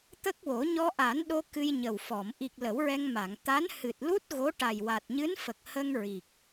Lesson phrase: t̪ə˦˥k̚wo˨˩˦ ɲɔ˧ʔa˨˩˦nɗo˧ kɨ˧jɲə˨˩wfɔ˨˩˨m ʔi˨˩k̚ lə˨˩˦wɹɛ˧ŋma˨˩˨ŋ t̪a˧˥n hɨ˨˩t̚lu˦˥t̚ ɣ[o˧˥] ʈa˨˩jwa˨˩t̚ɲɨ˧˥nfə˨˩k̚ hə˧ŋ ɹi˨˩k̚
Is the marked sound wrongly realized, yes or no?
no